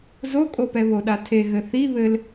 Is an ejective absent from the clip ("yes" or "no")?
no